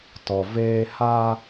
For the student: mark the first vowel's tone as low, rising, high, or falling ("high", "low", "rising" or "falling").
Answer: low